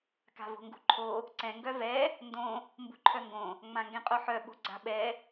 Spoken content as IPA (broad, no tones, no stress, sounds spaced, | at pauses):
k a̤ v o̤ ŋ ɡ ṳ ǃʰ o | ǀ ɛ̃ ŋ ɡ œ v ɛ | n d õ | m b ṳ ǃʰ œ ŋ ɡ õ | ŋ͡m ã ŋ ɡ ɛ̃ qʼ o ħ œ ɓ o̤ ɡ͡ǀ a̤ ɓ ɛ